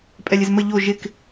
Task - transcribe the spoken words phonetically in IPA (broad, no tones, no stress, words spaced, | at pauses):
pʼɛlʲɪzmə ʎo ʒɪk